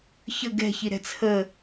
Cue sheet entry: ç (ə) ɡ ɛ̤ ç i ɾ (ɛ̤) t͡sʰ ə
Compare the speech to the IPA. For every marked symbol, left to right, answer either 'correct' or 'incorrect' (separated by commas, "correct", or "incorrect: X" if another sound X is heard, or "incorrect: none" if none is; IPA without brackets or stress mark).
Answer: correct, correct